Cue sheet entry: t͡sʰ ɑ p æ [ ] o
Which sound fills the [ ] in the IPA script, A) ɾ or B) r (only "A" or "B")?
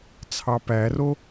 B